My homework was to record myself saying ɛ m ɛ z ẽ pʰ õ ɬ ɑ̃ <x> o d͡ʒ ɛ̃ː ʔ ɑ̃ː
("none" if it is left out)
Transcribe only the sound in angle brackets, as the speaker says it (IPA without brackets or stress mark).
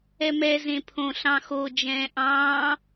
x